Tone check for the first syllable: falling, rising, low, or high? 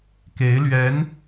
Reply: rising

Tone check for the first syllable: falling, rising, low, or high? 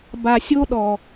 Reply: low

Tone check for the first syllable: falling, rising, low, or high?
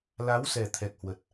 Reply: rising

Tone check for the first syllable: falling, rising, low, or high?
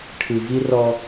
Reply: low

